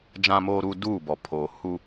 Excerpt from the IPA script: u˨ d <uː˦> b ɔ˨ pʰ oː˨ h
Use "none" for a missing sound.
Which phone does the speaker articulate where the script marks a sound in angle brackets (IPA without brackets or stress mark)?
uː˦˨